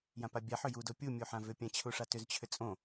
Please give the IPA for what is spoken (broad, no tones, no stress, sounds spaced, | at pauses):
j ã p a bʲ a ħ ʏ j u d o pʲ u mʲ u ħ ã v ʏ pʲ ã t͡ɕʰ u ʂ a t ʏ z t͡ɕʰ ʏ t͡sʼ õ